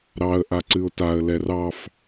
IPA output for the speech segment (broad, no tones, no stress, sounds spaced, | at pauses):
ɾ ɑ ə̯ ʔ a ǀ ɨ ʊ̯ t a ə̯ l ɛ r ɑ f